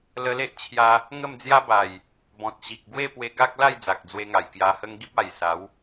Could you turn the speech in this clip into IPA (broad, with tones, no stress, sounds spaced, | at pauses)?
l ə˧ l e˦ ʔ t͡ɕʰ j a˧ | ŋ ə˥˧ m d͡z j a˦ b a˨˩ j | b ɔ̃˨ t̚ ɕ i˨ k̚ ɡ w e˥˧ p w e˧ ɡ a˦ k̚ l a˥˧ j d͡z a˨ k̚ d͡z w e˧ ŋ a˨˩ j k j a˧ h ə˦ ŋ ɡ i˦ p̚ a˨˩ j s a˨˦ w